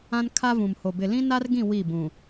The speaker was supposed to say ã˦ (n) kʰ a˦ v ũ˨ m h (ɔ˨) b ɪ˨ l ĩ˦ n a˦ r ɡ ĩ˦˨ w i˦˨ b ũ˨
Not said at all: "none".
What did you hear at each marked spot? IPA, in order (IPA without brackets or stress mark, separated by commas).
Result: n, o˨